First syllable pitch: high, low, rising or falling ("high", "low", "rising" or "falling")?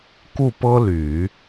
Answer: falling